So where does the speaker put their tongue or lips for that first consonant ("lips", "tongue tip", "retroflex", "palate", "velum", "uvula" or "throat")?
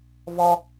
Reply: lips